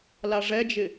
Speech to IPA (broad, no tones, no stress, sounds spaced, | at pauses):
l a ʐ ɛ d͡ʒ ɪ